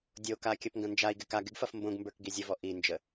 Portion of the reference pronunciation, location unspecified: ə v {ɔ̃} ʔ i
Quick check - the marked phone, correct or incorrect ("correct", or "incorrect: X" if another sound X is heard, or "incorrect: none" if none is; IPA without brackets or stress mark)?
incorrect: ɔ